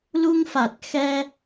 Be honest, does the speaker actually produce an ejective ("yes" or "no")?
no